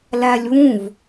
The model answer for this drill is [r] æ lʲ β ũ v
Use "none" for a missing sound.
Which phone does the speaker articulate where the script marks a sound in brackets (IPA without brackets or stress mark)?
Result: l